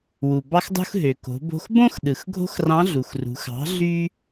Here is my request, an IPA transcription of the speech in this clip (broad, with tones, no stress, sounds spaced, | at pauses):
w u˩ b ɑ˧ x dˤ ṳ˧ x ɦ ø˩ k o̤˩˧ b o̤˧ x b õ˥ x ɗ ɯ˩ x ɡʱ o̤˥ x r ɑ̃˧˥ ɮ u˩ x r ṳ˩˧ x ɑ̤˩˧ ɮ y˥